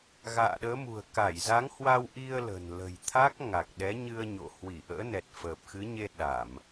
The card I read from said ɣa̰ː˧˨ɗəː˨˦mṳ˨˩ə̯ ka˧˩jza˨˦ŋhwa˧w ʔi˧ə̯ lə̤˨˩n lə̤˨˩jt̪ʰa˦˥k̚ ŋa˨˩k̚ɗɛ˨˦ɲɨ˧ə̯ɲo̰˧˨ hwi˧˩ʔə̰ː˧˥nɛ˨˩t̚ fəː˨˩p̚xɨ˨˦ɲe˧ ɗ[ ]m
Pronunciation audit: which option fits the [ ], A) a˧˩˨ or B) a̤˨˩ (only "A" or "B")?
A